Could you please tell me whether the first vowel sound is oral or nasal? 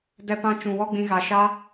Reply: oral